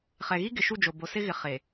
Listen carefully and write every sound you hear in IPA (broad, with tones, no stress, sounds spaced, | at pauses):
χ ɛ˨ ɣ i˦ ɡ ɪ˨ ʃ u˦˨ d͡ʒ o˨ b o˨ s ɪ˦ ɣ ɪ˨ χ e˨